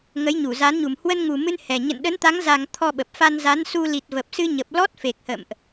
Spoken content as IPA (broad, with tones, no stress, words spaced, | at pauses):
ŋə˨˦jɲu˧˩za˨˦nɲu˨˩m hwə˧nŋu˨˩mɨ˧n hɛ˨˩ ɲə̰˧˨nɗə˨˦nt̪a˨˦ŋ za˨˩ŋ t̪ʰɔ˧ɓə˨˩p̚ fa˧nza˨˦nsu˧ li˨˩t̚və˨˩p̚sɨ˧ɲə˨˩p̚ lɔ˦˥t̚fe˨˩k̚hə̰˧˨mʔ